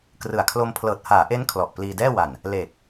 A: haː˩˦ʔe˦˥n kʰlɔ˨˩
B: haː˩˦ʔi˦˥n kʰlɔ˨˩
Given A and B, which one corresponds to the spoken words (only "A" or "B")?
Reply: A